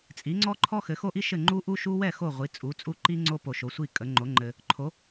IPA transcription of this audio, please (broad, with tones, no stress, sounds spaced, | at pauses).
t͡sʼ i˩˥ ŋ͡ǀ ɔ˥ ǃʰ ɔ˥ x ɘ˩˥ x o˥ ʔ i˥ ʃ ɘ˥˩ ŋ͡ǃ u˥ ʔ u˥ ʃ u˥ w ɛ˥˩ x o˥˩ ʁʷ i˩˥ t͡sʼ u˩˥ t͡sʼ u˥˩ ǃ i˥ ŋ͡ǀ o˥ p o˨ ʃ o˩˥ sʷ i˥˩ kʼ ə˩˥ ŋ͡ǃ o˩˥ ŋ͡ǃ ɘ˨ | ǃʰ o˩˥